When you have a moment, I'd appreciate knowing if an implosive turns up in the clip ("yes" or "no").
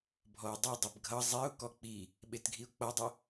yes